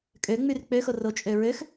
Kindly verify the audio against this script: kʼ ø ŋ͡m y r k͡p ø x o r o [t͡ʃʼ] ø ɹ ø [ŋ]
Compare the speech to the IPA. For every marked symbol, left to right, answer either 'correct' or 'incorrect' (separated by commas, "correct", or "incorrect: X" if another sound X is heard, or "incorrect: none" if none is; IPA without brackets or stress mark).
correct, incorrect: x